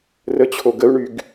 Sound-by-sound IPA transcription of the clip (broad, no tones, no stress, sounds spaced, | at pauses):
r ə t͡ɕʰ o ɡ ə u̯ ɳ y ɡ